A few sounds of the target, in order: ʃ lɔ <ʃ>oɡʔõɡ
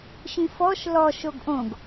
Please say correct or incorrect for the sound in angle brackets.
correct